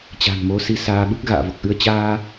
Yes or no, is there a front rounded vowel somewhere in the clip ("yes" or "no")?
no